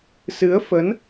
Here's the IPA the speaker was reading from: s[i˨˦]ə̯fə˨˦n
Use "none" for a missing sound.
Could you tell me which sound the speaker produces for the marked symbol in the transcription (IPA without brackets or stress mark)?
ɨ˨˦